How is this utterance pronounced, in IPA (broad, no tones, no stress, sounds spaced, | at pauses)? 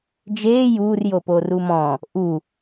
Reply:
d͡ʒ eː j uː r j oː p oː r u m ɔ̃ | ʔ u